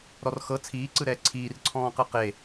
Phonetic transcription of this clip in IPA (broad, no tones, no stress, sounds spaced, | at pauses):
ɾ ɔ r x ɤ t͡sʰ iː ǀ ɯ ɾ ɛː ǀʰ iː r ǀʰ ɔ̃ː q ɯ q e